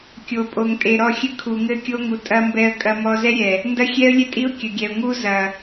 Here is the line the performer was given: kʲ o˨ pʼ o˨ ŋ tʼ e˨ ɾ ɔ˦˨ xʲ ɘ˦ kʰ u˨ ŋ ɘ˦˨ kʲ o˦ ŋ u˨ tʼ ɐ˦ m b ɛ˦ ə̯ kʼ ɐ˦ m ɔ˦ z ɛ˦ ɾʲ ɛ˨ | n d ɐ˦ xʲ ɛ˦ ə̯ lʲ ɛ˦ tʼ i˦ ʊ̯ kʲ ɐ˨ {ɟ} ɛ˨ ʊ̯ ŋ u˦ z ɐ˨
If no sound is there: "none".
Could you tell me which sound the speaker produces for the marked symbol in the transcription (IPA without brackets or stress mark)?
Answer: ɡʲ